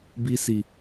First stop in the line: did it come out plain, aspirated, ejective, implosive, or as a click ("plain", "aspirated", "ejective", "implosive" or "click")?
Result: plain